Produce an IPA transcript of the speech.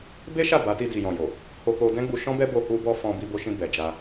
be˦ʃa˦˨ ba˨˦ti˧ di˨jɔ̃˨jo˨ | ho˧ko˧dɛ̃˦ ɡ͡bu˧ʃɔ̃˦bɛ˦bo˧ hu˧bɔ˧ fɔ̃˧bi˧bo˧ʃĩ˧ bɛ˨d͡ʒa˧

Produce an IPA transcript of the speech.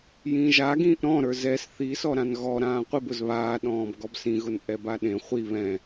jĩʒa ɡĩːʔɾɔ̃ ɾə˞zɛs θi sɔɾãnɣɔ ɾãːqʷib ʊzβaː ɗɔ̃ːbɡɔbsĩ ɣʊnʔɛbaɗẽ χʷi βɛ̃

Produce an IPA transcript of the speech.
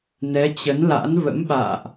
nɛ˨˦t͡ɕə˨˦nla̰˧˥n və̰˧˥mɓa̰ː˧˨ʔ

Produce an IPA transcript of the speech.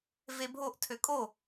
vebʱoʔ tʰøkʼo

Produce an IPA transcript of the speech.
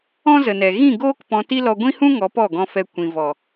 ɔ̃˦zə˨nɛ˨ ɣĩ˦˨ɡoː˦k pɔ̃˧ ti˦lɔ˧ ɡʷĩ˦hũ˦ ŋɔ˨˦pɔ˦˨ɡɔ̃˧fɛ˧ kʷĩ˨vɔ˨

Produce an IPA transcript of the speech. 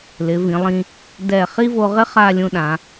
lɪ˩˧vĩ˩˧lˠĩ˧ | dɛ˧˩ χi˥vo˧ʁɪ˥ χa˥˧lʲũ˧ɗã˩˧

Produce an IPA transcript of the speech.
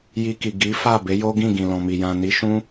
ji˧ki˨ ɡi˨˦fa˦˨ be˨˦jo˦ɡĩ˦˨ ɡĩ˨lɔ̃˨mi˨ jã˨ni˨˦ ʃũ˦

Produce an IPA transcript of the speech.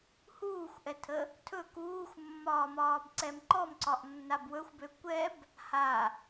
huːxʷʔɛtʰə | tʰɵ kuːxʷmːɒːmɒːbǀɛm ǃɔmǀɒʔnːab wɵxʷbø kʷɛb | ha

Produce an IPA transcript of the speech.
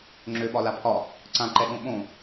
ŋ͡ǁøɓɒla pʰɒ | ǀãǃɛɠõ ɓõ

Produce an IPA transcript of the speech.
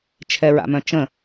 t͡ʃʰɛɹa̰mœ̃t͡ʃə̃

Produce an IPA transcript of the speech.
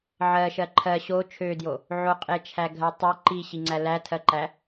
ʕɜʃɜ ǃʰɜ ɕo t͡ʃʰødjo | ʕoqʼet͡ʃʰæɡʱɜ tˤe ǃiɕiŋ͡ǀæ lætʰɜǃæ

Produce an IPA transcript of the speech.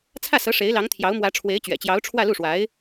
t͡sʰä˥˩sɤ˧˥ ʂe˧˥ɪ̯lɑ˧˥ŋ t̪ʰjɑ˧˥ʊ̯mwä˧˥ ʈ͡ʂʰwe˧˥ɪ̯t͡ɕɥɛ̰˨˩t͡ɕjɑ˧˥ʊ̯ ʈ͡ʂʰwä˥˧lu˥˩ʂwa˧˥ɪ̯

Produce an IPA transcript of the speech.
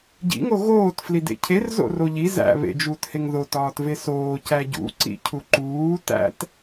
ɟḭŋo ɣoːt flidḛcʰer zo̰roʎi zæ̰ βḛd͡ʒuːtheŋ ðotɒːt vesoː cæɟṵǀḭ cʰuǃuː tæ̰t

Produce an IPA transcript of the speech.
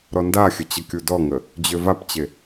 ɾɔndaxʲə t͡ɕəkʲudɔŋə | d͡ʑøvapt͡ɕe

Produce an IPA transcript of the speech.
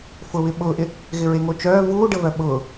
fʊβɪ ɓʊːʔɪ | ɣɪɹeŋot͡ʃœː vuːɖəvœ ɓʊː

